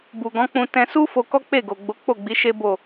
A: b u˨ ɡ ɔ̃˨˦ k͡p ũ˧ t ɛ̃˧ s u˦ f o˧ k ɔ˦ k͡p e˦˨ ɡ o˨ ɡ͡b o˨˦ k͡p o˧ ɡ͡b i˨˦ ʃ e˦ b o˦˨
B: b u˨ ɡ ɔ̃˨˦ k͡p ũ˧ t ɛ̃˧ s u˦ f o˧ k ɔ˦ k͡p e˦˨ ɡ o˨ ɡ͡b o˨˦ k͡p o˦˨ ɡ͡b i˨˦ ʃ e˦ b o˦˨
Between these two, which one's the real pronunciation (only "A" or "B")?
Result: B